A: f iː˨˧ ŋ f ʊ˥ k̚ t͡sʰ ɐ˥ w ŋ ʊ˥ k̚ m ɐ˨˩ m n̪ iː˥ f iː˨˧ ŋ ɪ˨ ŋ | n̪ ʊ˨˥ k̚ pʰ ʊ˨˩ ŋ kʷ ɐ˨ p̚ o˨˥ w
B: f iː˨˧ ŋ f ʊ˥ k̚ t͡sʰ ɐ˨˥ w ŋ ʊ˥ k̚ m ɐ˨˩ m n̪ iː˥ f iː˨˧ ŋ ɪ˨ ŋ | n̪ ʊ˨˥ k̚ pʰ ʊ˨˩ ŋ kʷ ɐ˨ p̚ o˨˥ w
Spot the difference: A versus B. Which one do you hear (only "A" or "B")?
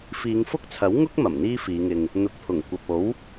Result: B